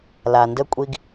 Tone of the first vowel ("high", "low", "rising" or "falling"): low